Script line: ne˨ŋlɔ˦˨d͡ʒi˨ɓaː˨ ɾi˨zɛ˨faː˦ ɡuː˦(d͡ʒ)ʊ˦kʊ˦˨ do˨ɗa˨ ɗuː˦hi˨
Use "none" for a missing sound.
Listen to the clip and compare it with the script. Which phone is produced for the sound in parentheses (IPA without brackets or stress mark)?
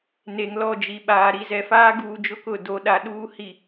d͡ʒ